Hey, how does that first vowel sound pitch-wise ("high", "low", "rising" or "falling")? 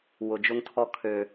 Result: low